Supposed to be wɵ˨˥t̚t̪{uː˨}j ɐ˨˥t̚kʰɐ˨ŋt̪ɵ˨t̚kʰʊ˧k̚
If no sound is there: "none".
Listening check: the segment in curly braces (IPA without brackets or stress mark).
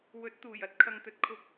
uː˨˩